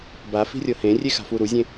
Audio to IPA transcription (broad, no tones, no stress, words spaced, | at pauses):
bafi̤rʲɤ hẽrʲexa̤fu ɾuzʲẽ